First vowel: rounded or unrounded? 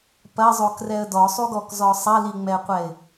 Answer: unrounded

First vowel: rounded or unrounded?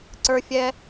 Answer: unrounded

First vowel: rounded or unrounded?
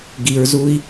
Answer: unrounded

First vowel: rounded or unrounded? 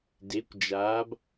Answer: unrounded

